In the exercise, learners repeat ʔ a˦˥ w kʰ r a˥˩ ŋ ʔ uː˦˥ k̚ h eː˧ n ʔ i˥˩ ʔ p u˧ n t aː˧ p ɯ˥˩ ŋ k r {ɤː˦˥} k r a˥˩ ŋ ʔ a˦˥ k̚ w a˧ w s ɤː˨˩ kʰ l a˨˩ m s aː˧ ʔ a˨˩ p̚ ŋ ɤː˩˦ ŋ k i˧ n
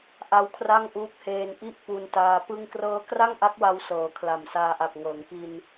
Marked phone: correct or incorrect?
correct